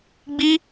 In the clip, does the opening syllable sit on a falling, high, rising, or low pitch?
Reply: high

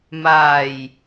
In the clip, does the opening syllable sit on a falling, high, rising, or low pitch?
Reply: low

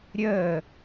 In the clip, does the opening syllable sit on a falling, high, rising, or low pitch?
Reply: falling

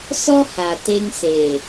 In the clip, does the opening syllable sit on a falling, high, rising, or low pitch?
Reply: high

